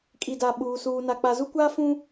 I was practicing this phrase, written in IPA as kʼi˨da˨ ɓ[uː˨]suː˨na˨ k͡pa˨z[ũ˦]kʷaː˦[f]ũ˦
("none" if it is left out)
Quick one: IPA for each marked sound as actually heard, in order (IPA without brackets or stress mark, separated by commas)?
uː˨, u˦, f